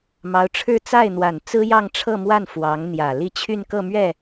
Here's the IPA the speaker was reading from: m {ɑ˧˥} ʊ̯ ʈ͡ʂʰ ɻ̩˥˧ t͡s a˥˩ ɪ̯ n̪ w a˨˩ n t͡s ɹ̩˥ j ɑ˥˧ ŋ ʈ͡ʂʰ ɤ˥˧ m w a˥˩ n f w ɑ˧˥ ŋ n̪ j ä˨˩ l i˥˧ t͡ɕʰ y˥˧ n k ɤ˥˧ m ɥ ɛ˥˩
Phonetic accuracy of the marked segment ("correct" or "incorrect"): correct